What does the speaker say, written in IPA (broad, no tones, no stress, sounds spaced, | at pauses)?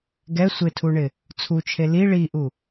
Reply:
ɡ ɛ sʷ ɪ tʰ u ɳ ɪ | t͡sʰ u t͡ʃʰ e l i ɭ i ʔ u